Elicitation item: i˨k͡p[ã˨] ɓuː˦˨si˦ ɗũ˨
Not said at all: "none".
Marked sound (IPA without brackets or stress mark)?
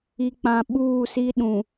ã˨